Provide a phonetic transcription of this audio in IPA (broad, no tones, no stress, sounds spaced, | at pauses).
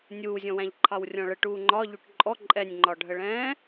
nʲ uː zʲ ɔ̃ w æ̃ ʎ ǃʰ ɑ w rʲ ɔ̃ ɭ ə ʈ uː ŋ͡ǃ ɒ ʎ u ʈ ǃʼ ɔ ǃʼ ɛ nʲ ŋ͡ǃ ɒ ɖʱ ə ɭ ɛ̃ː